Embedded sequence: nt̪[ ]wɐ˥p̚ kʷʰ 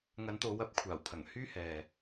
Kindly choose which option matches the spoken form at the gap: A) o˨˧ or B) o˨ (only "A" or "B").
A